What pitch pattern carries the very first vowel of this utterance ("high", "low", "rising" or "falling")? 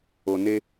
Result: low